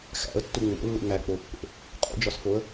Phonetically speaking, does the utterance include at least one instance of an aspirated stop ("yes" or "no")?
no